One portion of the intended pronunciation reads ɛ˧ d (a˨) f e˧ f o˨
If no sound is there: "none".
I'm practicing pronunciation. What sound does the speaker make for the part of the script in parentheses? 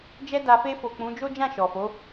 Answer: a˨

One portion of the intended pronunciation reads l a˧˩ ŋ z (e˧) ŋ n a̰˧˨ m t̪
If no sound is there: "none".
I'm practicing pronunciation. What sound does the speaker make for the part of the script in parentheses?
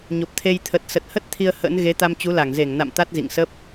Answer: e˧˩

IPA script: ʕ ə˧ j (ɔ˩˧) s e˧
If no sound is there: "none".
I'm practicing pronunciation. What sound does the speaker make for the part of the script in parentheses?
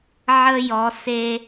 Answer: ɔ˩˧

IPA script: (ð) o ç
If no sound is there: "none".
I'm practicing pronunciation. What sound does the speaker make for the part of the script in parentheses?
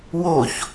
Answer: w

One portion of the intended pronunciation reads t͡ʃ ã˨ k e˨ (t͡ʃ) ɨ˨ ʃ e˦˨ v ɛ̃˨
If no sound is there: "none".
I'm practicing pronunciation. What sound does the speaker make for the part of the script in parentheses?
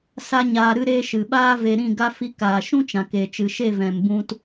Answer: t͡ʃ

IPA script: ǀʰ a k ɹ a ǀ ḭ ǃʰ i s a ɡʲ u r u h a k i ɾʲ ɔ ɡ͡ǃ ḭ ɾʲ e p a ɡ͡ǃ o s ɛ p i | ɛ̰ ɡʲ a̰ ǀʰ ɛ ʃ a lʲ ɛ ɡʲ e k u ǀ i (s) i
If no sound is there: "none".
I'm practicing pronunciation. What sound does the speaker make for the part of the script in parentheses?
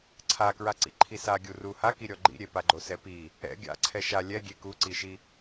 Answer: ʃ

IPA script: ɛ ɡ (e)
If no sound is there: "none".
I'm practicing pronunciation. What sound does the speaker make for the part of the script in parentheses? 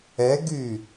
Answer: y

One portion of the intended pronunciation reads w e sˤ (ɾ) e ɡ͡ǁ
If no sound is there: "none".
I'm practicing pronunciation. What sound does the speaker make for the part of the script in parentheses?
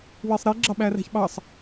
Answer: ɾ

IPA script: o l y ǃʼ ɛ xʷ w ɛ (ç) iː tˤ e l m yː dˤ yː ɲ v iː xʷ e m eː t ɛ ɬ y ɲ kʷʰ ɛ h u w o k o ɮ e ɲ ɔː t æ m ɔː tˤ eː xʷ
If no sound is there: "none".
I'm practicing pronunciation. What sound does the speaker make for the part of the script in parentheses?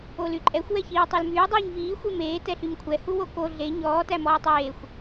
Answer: ç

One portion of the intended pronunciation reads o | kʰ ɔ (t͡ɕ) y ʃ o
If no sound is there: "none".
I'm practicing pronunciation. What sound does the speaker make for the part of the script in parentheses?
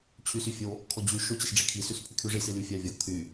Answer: d͡ʑ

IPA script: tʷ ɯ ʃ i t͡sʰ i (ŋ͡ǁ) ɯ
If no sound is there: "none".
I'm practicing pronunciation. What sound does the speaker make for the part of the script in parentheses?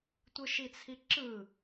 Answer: ǁ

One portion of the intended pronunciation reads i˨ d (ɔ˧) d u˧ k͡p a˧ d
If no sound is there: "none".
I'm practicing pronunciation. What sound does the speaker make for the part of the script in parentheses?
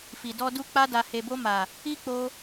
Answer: ɔ˧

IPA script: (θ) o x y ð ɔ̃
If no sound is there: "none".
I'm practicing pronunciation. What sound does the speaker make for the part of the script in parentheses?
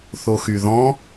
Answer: θ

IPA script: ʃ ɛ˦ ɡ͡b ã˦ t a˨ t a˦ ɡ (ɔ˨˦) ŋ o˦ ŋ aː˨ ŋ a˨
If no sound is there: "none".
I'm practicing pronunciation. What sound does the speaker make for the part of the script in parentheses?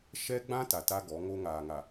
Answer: ɔ˨˦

